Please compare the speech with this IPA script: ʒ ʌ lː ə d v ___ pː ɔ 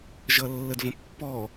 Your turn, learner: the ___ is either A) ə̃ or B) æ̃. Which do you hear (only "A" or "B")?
A